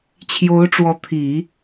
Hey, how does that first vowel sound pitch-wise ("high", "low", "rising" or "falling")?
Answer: rising